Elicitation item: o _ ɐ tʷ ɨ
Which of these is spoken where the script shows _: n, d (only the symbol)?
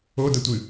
d